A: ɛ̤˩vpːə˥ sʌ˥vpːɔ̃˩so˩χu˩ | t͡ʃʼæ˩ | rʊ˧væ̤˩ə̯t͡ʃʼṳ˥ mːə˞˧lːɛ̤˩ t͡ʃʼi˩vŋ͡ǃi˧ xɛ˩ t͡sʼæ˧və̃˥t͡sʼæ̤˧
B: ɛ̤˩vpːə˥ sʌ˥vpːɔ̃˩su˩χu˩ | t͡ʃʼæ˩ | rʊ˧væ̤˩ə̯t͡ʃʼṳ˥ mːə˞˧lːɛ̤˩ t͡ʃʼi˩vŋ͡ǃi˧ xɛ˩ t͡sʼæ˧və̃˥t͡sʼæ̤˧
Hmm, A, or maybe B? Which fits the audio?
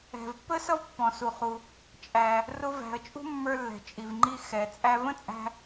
B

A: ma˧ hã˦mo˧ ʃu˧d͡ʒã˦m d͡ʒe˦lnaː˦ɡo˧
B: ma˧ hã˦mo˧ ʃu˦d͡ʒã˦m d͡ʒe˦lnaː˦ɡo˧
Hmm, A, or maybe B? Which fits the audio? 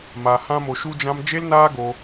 B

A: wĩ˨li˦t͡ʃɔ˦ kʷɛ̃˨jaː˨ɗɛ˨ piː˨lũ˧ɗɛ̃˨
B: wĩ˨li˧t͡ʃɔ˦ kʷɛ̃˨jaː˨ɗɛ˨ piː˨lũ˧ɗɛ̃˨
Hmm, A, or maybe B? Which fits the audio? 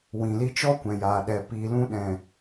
B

